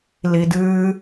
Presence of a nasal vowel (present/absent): absent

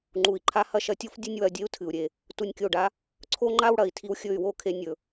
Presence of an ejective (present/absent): absent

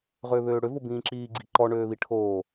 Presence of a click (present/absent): present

